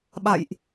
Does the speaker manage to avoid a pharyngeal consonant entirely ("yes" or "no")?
yes